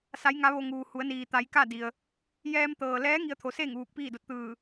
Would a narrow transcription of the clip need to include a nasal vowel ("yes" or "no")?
no